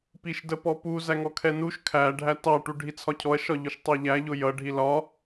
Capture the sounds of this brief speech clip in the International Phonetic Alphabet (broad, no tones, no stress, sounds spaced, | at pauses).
p i ʃ d ə p ɔ p u z æ ŋ ɔ kʰ ɛ n u ʃ kʰ æ ɖʱ æ t ɑ ʈ u ɖʱ i t͡sʰ ɒ cʰ ɔ ɐ̯ ʃ ɒ ʎ ʊ ʃ tˤ ɛ ʎ æ ʎ ʊ j ʌ ɖʱ i l ɒ